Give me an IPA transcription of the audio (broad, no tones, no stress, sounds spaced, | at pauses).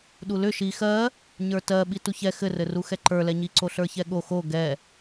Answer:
ɗ u l ʏ ʃ i x ɜ | ɲ ə˞ t ɜ ɓ i t u ç ɛ x ɘ r ɘ r u x ɛ ǃ ə˞ l ɛ ɲ i ǀ o ɬ ə˞ ç ɛ ɠ o x o ɡ ɛ